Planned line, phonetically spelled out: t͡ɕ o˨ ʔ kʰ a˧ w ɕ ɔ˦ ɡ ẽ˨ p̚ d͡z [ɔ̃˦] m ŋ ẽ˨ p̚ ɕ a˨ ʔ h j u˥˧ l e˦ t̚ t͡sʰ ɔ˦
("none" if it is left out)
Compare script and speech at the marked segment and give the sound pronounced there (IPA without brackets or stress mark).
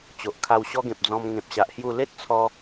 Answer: ɔ̃˧